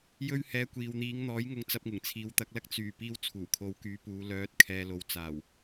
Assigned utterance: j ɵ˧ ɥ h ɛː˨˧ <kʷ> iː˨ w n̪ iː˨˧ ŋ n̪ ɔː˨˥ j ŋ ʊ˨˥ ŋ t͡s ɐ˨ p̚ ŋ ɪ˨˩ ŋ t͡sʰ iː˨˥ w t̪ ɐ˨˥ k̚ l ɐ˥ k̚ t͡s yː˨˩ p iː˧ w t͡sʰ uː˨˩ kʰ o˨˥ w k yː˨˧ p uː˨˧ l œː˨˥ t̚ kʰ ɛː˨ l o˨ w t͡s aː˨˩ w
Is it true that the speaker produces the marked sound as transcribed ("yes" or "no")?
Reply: yes